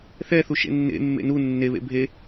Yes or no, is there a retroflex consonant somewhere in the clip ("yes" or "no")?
no